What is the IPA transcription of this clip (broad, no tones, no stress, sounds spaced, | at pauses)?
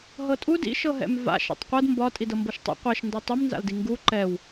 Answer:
ɦ ɤ tʼ u d ḭ ʃ ɤ ɦ ɛ̰ m v a̰ ʃ ɛ̰ tˤ qʷ ɤ d m b ɒ tʼ i d ɤ m b ɤ ʃ tˤ ɛ̰ qʷ ɛ ʃ n d ɒ tˤ u m n z a̰ l d i ŋ ɡ u ǃ ɛ w